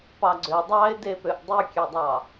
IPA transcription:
pɑɡ͡ǀø dˤɑɪ̯depøʔ dˤykʲødˤɑ

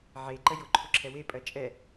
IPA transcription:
ʕeǃə jʊǃʰʊǁʰɛ wepʼɜ t͡ʃʼɛ

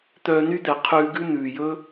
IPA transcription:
t̪œː˧ny˦d̪ɛ˨ qʰʉː˧ɡʉ˦ n̪ʉː˨jɵ˦

